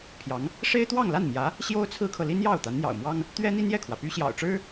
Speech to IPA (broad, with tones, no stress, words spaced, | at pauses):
pʰjɑ˧˥ŋ | ʂe˥ɪ̯t̪wɑ˥˧ŋla˥˩nmjä˧˥ | ɕjo˥ʊ̯t͡sʰɹ̩˥kʰɤ˨li˥n jɑ˥˩ʊ̯ t̪a˧˥nn̪jɑ̰˨˩ʊ̯mwɑ˥ŋ | t̪ɥɛ˥n̪i˥njɛ˥˩kʰwä˩ py˥ɕjɑ̰˨˩ʊ̯ʈ͡ʂɻ̩˥